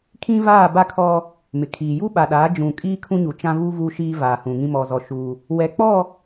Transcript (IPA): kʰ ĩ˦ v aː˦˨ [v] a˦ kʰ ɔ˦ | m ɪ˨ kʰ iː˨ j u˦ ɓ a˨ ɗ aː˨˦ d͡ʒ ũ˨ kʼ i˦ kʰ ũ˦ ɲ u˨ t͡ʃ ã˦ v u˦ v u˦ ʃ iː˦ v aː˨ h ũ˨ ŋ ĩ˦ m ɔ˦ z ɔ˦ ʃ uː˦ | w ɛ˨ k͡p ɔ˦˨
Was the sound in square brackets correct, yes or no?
no